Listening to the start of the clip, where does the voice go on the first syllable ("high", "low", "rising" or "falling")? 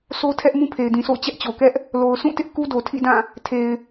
high